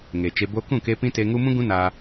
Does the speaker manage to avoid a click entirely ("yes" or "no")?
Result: yes